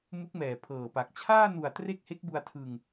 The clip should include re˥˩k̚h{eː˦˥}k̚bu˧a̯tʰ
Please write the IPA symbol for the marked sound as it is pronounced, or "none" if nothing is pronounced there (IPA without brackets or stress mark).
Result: e˦˥